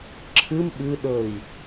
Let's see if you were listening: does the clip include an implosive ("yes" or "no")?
yes